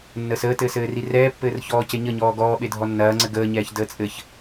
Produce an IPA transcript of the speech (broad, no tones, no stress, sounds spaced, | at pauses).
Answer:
nː əː s əː t ɘː s ɘː r i r ɛː pː ɘː r ç ɔː c e ɲ ə ɲ ɔː ɡ ɔː ɓ e dʱ ɔ nː ɐː ŋ͡ǀ ɘ ɡ əː ɲ ɛː ç d əː t͡sʼ ɘ ç